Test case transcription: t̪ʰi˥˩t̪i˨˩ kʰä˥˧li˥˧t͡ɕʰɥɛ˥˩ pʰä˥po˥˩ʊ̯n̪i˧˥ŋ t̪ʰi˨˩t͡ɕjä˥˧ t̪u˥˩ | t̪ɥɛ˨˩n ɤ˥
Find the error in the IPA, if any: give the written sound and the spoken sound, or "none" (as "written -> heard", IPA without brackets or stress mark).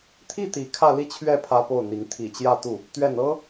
none